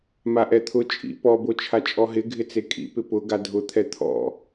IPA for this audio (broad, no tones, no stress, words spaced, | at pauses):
maʔɛt̪ʰʊ t͡ʃʼḭ pɔbot͡ʃʰa t͡ʃʼɔɦɪ ɡʱɪt͡sekʼḭ pɪpʊ ɡadʱʊt̪ʰɛ t̪ʰɔ̰